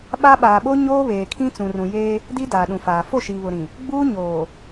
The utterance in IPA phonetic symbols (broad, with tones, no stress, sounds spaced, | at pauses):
ɓ a˦ ɓ aː˨ ɓ o˦ ɲ oː˦ β eː˨ kʰ ĩ˦ t͡s ũ˨ r ũ˨ j eː˦ | d i˦ d aː˨ ɗ ũ˨ f aː˨ f o˦˨ ʃ iː˨ β ʊ˨ ɾ ĩ˨ | ɡ͡b uː˦ ɲ oː˨